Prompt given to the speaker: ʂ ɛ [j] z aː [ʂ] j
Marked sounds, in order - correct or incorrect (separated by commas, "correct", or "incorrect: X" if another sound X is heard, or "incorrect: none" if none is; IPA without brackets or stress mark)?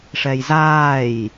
correct, incorrect: none